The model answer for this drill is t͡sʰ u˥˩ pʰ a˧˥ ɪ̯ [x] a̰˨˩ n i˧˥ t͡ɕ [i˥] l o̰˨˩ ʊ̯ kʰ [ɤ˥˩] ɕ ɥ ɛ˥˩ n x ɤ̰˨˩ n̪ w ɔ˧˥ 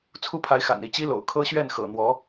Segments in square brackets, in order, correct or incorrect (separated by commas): correct, correct, incorrect